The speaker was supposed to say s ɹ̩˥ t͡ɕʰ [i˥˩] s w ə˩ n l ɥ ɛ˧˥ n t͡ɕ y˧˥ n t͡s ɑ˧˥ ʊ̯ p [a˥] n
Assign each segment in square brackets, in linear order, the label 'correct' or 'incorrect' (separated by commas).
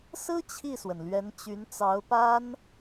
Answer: correct, correct